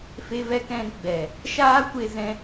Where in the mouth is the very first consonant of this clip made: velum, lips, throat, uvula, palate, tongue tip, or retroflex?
lips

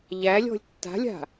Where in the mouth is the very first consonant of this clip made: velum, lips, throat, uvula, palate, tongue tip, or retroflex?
palate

